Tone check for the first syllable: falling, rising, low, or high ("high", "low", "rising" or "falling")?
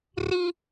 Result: high